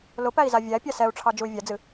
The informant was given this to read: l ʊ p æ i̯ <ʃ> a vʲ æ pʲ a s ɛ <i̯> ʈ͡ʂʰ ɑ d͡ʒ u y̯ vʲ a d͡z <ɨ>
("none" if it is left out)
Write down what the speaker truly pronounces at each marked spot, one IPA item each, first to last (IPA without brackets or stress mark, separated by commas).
z, u̯, ɨ